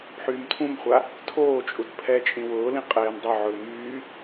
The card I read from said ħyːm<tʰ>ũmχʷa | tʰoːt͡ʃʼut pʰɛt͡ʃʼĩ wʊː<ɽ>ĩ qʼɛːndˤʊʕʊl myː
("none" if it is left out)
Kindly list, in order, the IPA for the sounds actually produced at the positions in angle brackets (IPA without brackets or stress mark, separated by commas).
tʰ, l